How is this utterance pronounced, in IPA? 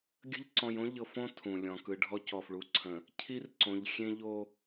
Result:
ɡʲ ə̤˦ ʎ ǀ ɔ̃˨ j õ˦ ʎ ɤ˨ f õ˦ tʰ ũ˨ lʲ ɔ̃˨ k ɯ˨ ɖʱ ɔ˦ c ɔ˨ f ɭ u˨ ǀʰ ə̃˨ | cʰ i˦ r ǀ õ˨ ʎ xʲ ẽ˦ ʎ o˦

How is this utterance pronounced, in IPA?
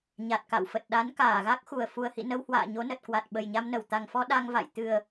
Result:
ɲ a˨˩ t̚ k a̰˧˨ w f ə˨˩ t̚ ɗ a˨˦ n k aː˧˩ ɣ a˦˥ k̚ x u˨˩ ə̯ f u˨˩ ə̯ h ḭ˧˨ n ə˧ w h w a̰ː˧˨ ɲ o˨˦ n ə˨˩ t̚ k w a˨˩ t̚ ɓ ə˨˩ j ɲ a˧ m n ə˧˩ w t̪ a˨˩ ŋ f ɔ˧ ɗ a˧ ŋ v a̰˧˨ j t̪ ɨ˨˩ ə̯

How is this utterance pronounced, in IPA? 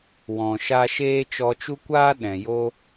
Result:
w ɔ̃˨ ʃ a˧ ʃ eː˦ t͡ʃ ɔ˧ t͡ʃ u˦ kʷ aː˦ ɗ ɛ̃˨ j o˦

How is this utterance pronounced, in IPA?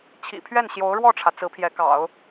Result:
t͡ɕʰ ḭ˨˩ pʰ ɥ ɛ˥˩ n ɕ j o˧˥ ʊ̯ ɻ w ɔ˥˩ ʈ͡ʂʰ ä˩ t͡s ɹ̩˧˥ pʰ j ɛ˧˥ k ɑ̰˨˩˦ ʊ̯

